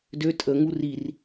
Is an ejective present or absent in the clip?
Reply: present